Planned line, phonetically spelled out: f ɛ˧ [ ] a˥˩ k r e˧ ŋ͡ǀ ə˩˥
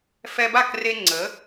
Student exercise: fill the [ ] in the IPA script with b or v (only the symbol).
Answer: b